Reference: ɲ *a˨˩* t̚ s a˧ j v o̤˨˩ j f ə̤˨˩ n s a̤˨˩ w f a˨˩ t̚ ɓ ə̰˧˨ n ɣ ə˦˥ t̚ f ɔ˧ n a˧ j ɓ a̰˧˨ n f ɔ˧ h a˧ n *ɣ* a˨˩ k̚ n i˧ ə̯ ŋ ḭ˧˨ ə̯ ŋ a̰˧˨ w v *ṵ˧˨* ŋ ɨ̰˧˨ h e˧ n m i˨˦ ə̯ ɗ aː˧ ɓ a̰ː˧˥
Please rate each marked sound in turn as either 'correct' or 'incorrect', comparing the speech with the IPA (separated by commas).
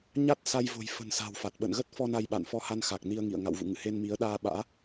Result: incorrect, incorrect, correct